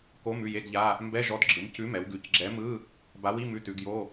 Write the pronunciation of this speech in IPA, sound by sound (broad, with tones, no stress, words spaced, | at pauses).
ko˧˥˧m ʉ˦˨je˧˥˧ɡʎa˧˥˧ | mbɛ˧˥˧ʒɔ˨˥d ɡ͡ǁɯ˩˧m cʉ˨˥mɛ˩˧wɡʉ˩˧c ɡ͡ǁɛ˨˥mɯ˧˥˧ | ba˨˥wi˧˥˧ mʉ˨˥tʉ˩˧ɡjo˧˥˧